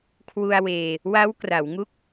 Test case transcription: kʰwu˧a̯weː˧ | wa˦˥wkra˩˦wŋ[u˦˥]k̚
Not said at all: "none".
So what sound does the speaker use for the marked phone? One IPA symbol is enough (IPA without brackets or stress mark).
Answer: u˦˥